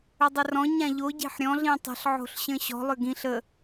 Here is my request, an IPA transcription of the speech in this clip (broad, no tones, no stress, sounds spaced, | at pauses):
ʏ dˤ ʏ r ɔ̃ ɲ ã ʎ o ɟ e̤ ħ ɾʲ ɔ̃ ɮ ĩ tˤ ə̤ ɬ ʕ o̤ ɬ ɕ ə̃ ɕ ɔ̤ lˠ ʏ ɡ ĩ ɬ ə